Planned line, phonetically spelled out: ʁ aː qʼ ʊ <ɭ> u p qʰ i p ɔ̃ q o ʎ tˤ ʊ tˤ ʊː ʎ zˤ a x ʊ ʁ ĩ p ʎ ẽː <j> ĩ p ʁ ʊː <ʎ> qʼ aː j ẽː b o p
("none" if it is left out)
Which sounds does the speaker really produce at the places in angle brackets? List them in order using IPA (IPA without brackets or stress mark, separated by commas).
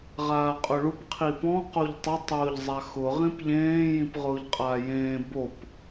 ɭ, j, ʎ